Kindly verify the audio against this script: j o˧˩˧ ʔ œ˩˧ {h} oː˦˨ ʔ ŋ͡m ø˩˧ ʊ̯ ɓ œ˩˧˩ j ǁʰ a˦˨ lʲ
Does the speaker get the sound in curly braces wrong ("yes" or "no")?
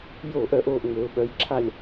yes